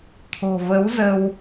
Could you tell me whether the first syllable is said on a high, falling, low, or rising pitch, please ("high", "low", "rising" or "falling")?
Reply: low